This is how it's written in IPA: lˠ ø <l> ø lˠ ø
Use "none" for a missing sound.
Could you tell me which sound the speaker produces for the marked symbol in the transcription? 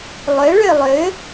ɭ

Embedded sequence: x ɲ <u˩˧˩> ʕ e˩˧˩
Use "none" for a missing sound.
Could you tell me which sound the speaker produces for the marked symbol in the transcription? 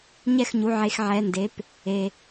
u˩˧˩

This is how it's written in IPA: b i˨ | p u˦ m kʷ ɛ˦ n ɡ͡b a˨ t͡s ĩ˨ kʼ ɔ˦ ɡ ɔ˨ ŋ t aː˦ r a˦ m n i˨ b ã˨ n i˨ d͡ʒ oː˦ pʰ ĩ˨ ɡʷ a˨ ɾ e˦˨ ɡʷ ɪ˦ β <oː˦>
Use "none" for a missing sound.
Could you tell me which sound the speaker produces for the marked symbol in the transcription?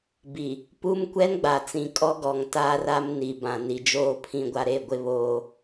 oː˦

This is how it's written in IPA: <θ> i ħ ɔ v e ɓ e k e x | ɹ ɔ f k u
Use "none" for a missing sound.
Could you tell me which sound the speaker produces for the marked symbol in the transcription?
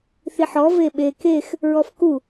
θ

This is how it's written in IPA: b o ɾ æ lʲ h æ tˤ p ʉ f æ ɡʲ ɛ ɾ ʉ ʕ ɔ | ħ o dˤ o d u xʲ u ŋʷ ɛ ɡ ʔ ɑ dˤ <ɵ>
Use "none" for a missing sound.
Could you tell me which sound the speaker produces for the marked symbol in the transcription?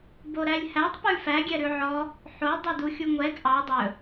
ɵ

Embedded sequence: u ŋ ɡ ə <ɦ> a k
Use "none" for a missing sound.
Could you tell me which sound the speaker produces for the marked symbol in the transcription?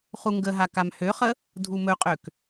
ɦ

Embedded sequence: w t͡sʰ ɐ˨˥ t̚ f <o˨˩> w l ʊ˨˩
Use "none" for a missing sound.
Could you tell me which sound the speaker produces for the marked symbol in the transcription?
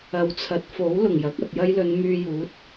o˨˥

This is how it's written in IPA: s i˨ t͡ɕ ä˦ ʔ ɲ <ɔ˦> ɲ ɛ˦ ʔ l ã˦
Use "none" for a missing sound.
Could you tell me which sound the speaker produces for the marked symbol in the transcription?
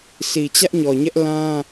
ɔ˨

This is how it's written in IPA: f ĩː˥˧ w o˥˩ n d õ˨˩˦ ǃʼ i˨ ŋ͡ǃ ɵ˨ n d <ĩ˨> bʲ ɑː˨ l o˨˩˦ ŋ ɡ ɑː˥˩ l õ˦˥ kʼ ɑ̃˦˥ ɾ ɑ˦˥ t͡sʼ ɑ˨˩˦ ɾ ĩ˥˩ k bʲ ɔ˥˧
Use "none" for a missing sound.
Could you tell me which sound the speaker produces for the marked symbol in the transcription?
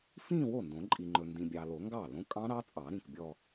ĩ˨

